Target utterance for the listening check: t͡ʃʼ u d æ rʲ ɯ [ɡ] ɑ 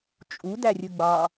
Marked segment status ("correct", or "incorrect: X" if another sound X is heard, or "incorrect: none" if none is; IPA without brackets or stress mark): incorrect: ɡ͡b